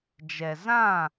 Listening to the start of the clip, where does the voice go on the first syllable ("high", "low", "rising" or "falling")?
low